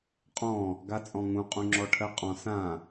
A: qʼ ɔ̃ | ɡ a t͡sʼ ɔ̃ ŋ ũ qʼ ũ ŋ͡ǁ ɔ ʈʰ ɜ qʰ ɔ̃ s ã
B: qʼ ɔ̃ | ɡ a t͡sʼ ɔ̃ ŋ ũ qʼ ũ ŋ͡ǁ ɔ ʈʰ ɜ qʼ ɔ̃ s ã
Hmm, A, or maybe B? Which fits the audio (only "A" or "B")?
B